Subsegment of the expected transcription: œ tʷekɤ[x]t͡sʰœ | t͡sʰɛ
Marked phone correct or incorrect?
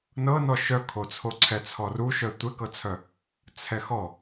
incorrect